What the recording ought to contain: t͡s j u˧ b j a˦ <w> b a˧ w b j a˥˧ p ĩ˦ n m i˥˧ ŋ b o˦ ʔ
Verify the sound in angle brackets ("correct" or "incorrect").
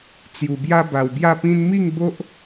incorrect